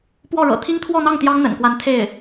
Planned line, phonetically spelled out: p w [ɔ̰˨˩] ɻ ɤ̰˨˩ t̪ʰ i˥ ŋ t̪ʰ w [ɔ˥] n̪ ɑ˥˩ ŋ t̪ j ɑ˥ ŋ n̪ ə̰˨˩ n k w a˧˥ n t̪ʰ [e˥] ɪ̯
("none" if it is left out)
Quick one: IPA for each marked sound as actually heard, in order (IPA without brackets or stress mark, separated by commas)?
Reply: ɔ˥˩, ɔ˥˧, e˥˩